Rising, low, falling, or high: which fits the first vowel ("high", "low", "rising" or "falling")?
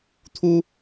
high